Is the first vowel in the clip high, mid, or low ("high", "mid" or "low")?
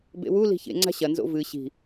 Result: mid